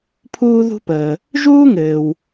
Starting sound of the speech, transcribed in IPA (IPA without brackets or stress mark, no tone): pʰ